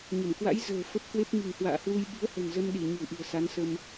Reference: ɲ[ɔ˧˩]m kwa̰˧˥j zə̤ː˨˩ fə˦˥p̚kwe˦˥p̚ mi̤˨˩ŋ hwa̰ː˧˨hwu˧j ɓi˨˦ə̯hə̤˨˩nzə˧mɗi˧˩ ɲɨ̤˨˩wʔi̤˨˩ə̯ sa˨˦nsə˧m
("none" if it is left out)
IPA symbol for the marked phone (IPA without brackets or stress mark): ə˧˩